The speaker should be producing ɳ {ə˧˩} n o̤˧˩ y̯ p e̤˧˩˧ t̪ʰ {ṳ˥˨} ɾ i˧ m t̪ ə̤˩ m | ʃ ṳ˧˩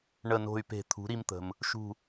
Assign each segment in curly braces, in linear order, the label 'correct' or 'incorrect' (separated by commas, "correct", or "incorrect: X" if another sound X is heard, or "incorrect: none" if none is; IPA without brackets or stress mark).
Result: correct, incorrect: ṳ˩˥